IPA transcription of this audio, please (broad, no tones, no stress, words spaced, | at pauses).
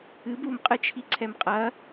ɨb umqʼɨt͡ʃʰiǀʰɛm qʼɐ